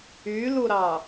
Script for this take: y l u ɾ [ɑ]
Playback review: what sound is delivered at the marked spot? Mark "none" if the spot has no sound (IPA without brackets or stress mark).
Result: ɑ